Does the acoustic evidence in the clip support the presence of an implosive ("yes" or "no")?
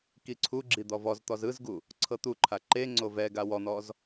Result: no